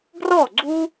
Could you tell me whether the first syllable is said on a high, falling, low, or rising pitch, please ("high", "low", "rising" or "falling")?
falling